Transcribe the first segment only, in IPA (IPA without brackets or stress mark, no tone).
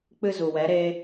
k͡p